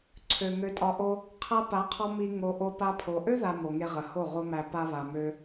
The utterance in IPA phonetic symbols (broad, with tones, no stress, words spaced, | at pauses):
ǀʰø˨ŋø˧tʼɒ˧ʔo˦ | qʰa˧pa˨˦qʰɒ˧ mi˧ ŋo˧ ʔo˧pa˧pʰo˨ ʔø˦ða˨ mo˨ŋe˧ ʁə˨ ho˦˨ʁo˦mæ˧ pa˧βa˨ mø˧